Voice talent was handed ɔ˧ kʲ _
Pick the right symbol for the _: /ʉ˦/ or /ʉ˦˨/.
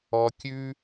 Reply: ʉ˦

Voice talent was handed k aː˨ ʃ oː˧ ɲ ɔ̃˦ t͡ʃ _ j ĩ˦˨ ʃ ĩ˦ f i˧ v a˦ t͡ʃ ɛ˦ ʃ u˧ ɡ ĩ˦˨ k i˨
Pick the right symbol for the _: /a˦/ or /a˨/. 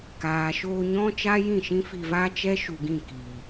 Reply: a˦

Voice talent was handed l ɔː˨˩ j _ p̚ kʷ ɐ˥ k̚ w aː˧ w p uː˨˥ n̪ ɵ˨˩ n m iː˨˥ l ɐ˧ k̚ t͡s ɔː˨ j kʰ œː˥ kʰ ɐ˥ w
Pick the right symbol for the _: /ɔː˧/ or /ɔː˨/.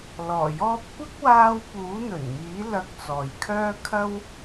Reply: ɔː˧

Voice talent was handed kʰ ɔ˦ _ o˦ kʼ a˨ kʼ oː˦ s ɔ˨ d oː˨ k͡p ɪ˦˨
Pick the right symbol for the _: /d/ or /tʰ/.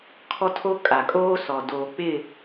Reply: tʰ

